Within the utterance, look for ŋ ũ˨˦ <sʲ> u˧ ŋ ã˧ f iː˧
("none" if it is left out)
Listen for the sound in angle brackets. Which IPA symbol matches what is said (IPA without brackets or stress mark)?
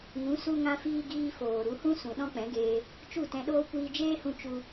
s